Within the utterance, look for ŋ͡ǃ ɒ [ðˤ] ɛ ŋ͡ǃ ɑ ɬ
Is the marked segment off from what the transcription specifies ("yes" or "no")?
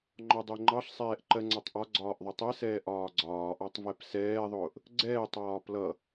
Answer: yes